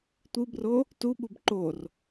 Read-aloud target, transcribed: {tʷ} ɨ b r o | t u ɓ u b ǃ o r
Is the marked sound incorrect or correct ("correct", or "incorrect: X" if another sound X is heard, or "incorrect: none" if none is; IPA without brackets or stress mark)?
correct